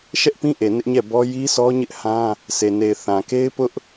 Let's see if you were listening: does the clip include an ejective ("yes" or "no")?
no